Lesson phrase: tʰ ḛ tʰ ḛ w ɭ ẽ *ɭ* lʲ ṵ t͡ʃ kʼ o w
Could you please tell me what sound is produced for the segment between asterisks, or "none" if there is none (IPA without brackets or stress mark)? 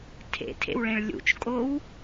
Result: ɭ